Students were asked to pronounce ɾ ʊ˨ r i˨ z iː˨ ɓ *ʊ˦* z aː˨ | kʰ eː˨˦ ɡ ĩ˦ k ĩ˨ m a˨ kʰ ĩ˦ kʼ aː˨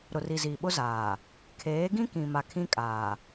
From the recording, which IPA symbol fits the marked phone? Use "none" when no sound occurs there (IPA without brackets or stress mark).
ʊ˦